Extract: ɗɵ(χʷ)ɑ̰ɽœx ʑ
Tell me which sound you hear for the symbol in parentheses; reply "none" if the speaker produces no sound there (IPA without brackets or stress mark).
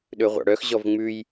ʁʷ